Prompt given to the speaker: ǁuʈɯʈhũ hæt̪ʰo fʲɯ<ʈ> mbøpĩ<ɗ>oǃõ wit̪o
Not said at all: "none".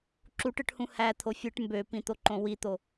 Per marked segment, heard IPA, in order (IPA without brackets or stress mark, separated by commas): ʈ, t̪